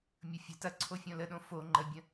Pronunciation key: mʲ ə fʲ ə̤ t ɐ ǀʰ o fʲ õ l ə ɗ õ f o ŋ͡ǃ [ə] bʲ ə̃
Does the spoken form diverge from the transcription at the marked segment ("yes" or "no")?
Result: no